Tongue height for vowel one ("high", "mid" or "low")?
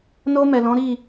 mid